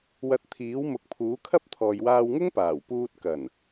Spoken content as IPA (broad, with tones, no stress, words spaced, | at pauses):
wɐ˧t̚t̪ʰiː˨˥w mʊ˨˥k̚pʰuː˨˥kʰɐ˥p̚t̪ʰɔː˨j waː˧wŋʊ˥ŋpaː˨˩w puː˧t̚ kɐ˨˩n